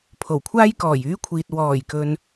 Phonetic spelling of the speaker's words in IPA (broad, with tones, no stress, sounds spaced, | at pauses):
pʰ o˨˩ w kʷʰ aː˥ j k ɔː˨˩ j yː˥ kʷʰ iː˨ t̚ w ɔː˨˩ j k ɵ˨ n